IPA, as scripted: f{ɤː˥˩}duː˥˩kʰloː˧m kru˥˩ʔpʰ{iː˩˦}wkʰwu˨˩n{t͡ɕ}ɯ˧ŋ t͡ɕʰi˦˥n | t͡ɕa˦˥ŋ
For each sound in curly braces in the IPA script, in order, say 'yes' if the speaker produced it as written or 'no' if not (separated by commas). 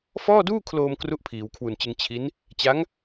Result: no, yes, yes